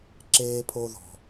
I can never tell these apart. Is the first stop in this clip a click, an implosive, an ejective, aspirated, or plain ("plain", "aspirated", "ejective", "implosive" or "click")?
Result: click